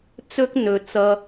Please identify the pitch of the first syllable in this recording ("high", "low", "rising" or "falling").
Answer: high